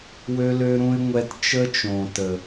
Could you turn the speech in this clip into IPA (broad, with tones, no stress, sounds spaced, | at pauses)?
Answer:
w ø˧ l ø˧ ɾ ũ˧ ɪ̯ ŋʷ ɛ˧ t t͡ʃ ə˦ t͡ʃ õ˨ t ə˨